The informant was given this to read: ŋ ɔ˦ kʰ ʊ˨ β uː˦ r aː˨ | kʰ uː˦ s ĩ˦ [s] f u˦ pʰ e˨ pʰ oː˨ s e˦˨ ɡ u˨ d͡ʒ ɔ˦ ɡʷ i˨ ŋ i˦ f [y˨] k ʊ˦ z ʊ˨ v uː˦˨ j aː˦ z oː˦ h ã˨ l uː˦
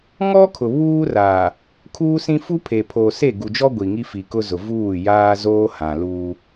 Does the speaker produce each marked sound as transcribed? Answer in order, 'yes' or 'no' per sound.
no, no

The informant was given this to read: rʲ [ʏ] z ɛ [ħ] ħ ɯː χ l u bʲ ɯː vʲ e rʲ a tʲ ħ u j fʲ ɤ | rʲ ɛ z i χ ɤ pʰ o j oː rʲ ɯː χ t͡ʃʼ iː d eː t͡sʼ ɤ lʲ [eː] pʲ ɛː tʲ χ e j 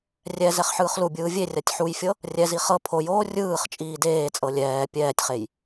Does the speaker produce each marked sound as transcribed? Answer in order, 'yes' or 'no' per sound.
no, no, no

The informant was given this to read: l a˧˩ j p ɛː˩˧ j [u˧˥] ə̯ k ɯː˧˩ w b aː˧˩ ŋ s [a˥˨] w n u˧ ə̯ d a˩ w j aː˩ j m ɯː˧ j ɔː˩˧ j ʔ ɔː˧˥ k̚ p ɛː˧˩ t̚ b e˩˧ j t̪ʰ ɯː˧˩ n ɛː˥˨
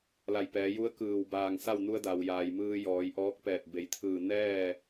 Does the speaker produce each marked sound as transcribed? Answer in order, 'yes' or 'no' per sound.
yes, yes

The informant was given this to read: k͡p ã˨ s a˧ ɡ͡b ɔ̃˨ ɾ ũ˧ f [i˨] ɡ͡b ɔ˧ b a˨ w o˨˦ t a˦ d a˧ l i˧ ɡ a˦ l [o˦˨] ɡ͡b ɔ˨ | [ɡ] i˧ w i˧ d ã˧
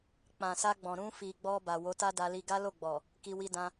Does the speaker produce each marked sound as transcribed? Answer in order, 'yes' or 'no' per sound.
yes, yes, no

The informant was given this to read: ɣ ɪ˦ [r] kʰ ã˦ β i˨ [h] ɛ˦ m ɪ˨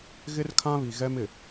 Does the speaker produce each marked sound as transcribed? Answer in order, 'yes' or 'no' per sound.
yes, no

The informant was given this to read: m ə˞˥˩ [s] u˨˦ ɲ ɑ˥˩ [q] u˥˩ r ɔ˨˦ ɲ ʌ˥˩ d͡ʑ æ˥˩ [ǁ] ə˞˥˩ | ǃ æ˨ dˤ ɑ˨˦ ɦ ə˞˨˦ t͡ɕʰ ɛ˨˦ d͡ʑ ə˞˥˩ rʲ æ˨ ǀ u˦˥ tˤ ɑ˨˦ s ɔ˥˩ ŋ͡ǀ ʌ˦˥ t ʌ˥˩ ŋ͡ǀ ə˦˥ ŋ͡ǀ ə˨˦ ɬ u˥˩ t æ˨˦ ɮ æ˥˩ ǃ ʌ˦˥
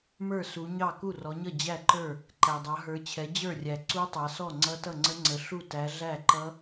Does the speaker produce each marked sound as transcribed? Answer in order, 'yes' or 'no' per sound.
yes, no, no

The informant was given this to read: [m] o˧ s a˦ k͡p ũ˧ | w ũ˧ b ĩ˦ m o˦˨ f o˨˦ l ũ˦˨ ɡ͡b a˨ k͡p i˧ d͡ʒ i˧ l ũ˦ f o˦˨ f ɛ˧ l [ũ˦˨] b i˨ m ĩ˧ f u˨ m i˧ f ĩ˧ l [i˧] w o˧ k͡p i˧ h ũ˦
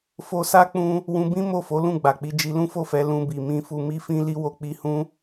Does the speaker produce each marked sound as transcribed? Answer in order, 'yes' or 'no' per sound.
no, no, yes

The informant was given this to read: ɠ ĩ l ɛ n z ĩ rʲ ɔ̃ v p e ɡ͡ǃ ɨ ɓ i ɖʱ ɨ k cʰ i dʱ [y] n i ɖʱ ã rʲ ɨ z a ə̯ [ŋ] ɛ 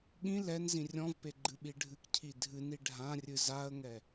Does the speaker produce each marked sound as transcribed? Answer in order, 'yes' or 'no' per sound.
no, yes

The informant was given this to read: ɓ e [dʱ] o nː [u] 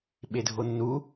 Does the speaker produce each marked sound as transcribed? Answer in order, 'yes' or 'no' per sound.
yes, yes

